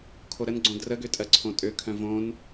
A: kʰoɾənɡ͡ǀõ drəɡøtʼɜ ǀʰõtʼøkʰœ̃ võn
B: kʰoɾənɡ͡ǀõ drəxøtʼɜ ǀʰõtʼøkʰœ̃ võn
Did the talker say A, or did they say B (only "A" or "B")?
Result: A